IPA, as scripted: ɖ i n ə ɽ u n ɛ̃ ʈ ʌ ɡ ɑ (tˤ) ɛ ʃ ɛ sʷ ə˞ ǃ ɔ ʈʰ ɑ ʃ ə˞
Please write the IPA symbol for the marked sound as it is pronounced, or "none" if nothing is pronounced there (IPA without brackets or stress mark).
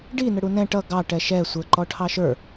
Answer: ʈ